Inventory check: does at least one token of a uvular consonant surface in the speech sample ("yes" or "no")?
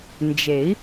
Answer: no